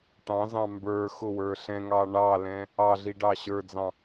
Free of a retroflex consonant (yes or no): no